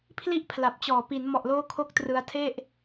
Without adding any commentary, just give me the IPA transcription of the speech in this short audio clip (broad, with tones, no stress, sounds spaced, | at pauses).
pʰ l i˦˥ ʔ pʰ l a˨˩ p̚ t͡ɕ ɔː˨˩ p i˩˦ n m ɔ˨˩ ʔ l oː˧ kʰ o˦˥ k̚ t r ɯ˧ a̯ tʰ e˥˩ ʔ